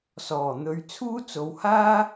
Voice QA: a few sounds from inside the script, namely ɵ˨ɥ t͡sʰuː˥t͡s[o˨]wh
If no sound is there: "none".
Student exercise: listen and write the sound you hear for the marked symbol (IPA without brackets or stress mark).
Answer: o˨